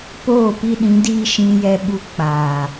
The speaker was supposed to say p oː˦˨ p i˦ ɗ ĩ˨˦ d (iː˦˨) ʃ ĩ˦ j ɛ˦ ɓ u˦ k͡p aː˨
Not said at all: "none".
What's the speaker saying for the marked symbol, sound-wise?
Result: iː˦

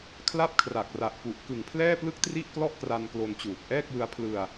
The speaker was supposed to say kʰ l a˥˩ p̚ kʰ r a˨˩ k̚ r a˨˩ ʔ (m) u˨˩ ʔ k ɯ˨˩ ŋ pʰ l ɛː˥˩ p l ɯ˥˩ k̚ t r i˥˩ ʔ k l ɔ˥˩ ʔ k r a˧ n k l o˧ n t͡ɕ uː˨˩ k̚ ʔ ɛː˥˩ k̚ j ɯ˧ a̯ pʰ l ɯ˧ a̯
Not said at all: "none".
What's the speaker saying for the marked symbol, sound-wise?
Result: p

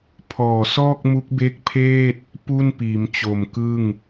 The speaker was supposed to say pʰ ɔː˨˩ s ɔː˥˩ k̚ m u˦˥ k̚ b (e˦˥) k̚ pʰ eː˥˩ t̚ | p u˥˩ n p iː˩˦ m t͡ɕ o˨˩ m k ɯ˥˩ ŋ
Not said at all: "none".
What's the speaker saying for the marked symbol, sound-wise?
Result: e˦˥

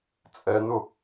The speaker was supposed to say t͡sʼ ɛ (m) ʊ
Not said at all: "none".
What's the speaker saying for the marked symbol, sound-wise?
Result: n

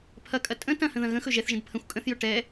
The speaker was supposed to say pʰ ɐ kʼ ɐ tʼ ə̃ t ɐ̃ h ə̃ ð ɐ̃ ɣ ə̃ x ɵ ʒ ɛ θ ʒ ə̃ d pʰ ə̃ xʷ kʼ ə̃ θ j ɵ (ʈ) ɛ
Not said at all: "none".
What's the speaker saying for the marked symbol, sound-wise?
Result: ʈ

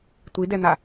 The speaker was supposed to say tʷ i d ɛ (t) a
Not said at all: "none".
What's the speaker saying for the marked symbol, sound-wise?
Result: n̪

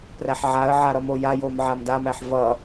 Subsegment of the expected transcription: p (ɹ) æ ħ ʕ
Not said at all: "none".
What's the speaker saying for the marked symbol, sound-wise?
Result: r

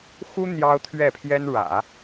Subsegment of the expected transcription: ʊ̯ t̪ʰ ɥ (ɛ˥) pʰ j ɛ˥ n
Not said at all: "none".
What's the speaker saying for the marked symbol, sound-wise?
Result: ɛ˥˩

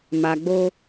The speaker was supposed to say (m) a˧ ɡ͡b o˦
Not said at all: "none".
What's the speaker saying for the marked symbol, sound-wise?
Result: m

